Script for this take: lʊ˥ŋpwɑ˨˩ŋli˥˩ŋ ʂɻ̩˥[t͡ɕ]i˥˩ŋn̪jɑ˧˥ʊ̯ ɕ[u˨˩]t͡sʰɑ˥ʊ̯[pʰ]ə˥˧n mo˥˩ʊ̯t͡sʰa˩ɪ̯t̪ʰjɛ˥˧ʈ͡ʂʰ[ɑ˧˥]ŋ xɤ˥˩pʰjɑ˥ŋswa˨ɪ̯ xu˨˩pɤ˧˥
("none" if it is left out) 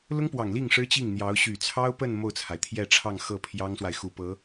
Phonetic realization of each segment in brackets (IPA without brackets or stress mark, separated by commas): t͡ɕ, y˨˩, p, ɑ˥˧